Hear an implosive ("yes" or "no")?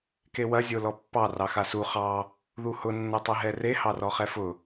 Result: no